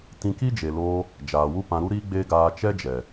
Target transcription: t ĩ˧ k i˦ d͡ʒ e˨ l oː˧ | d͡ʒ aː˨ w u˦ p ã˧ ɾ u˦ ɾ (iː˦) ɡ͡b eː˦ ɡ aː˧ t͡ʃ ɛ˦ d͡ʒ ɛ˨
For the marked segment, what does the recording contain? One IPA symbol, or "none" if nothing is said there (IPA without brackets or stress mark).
iː˦